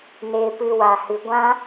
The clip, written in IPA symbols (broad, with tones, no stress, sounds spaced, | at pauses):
n eː˧ p ɨ˧ w a˨ h ɨ˨ ɡʷ ã˦